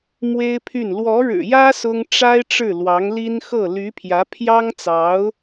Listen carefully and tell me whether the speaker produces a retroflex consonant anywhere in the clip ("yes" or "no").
yes